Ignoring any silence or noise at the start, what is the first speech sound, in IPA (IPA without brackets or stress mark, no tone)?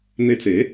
n̪